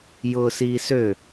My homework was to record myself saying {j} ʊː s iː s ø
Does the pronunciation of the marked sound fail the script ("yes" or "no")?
no